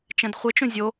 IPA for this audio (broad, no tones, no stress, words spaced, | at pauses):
t͡ʃɛ̃dχʷɘt͡ʃũ zʲo